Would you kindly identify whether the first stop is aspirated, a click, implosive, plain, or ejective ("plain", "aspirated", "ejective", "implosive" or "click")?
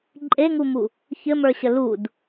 click